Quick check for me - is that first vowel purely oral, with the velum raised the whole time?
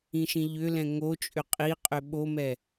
no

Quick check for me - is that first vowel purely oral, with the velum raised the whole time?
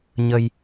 yes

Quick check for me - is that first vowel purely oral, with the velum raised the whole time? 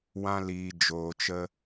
no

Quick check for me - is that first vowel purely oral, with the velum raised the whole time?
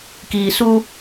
yes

